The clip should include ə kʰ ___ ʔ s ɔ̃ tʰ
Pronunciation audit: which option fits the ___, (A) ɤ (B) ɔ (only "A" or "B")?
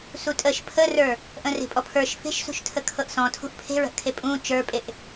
A